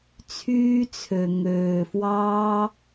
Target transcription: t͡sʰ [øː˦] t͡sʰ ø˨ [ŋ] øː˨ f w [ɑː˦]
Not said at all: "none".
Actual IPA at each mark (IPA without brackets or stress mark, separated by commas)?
yː˦, ŋ, ɑː˦